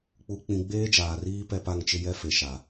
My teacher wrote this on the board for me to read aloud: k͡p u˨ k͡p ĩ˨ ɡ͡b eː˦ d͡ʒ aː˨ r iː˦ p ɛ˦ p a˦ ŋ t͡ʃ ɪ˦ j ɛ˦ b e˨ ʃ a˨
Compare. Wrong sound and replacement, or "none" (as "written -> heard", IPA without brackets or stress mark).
b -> f